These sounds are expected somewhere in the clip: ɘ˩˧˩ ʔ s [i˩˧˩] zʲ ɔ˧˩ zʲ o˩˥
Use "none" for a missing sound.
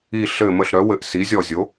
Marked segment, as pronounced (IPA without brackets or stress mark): i˩˥